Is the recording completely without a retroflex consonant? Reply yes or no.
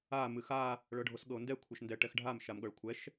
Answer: no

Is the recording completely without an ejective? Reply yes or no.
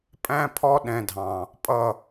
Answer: no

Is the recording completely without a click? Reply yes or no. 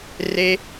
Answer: yes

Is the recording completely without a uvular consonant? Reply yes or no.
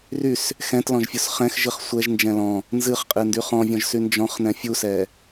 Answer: no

